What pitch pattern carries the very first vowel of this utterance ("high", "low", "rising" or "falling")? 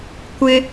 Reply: high